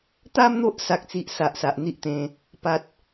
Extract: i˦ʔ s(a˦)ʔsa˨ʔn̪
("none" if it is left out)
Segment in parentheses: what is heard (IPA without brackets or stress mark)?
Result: a˨